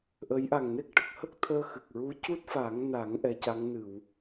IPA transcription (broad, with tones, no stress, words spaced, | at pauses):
ʔə˧˥j ʔa˨˩ŋne˦˥k̚ʈə˨˩k̚hə˦˥k̚ t̪ʰəː˧xɨ˨˩k̚ɹu˧˥ cu˦˥t̚fa˨˩˦ŋna˨˩˦ŋ ʔɛ˧˥ca˧˥ŋ nɨ˨˩˨w